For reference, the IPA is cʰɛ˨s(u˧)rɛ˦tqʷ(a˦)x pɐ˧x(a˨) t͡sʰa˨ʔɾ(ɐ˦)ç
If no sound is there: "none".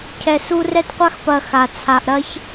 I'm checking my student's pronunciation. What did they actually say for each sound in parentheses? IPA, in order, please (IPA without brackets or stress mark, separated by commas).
u˧, a˦, a˨, ɐ˦